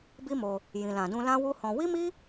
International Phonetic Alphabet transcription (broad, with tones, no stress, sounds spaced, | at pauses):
b i˦ m o˧ | j ĩ˨ l ã˨ d ũ˧ l ã˦ w u˦ h ɔ̃˧ w i˦ m i˦